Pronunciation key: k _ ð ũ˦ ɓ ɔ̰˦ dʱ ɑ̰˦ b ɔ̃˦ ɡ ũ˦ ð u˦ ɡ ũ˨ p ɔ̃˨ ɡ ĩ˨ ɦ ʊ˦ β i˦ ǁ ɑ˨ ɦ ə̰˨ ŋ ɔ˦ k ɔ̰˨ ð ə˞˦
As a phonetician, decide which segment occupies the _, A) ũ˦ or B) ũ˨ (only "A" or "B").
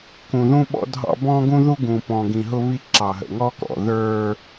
B